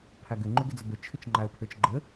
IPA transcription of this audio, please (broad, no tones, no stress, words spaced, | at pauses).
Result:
pʰaɡʏ ŋ͡ǃʏɡʏd͡zʏbə t͡ʃʰʏt͡ʃŋ͡ǃaə̯pʰə˞t͡ʃɡ͡ǃə